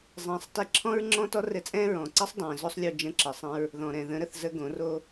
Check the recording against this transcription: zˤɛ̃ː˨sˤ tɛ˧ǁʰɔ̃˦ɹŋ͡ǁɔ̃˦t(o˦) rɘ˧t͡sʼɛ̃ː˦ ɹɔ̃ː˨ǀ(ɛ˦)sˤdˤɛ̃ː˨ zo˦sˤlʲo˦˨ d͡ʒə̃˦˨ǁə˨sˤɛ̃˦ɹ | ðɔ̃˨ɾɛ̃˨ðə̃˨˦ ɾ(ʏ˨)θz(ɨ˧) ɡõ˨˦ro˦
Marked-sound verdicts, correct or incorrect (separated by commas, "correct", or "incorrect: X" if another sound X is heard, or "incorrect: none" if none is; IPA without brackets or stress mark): incorrect: ɔ˦, correct, incorrect: ə˨, incorrect: ə˧